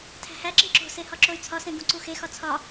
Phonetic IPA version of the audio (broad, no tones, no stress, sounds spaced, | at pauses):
tʰ æ̤ h æ ǁ ĩ ǁ o̤ s e h ɒ ǁ o y̯ t͡sʰ ɒ s ẽ ɡ ũ ǀ u x e x ɒ t͡sʰ ɒ